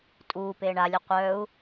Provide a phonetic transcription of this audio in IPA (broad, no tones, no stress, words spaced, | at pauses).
tʼuːpeː ɳalʲu qʷœːu̯